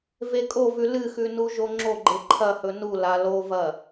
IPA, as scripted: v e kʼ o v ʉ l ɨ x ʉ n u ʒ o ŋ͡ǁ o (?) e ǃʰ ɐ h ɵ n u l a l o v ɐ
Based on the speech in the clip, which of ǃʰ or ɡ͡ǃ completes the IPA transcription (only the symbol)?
ɡ͡ǃ